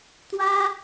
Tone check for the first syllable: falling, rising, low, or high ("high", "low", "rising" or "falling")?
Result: high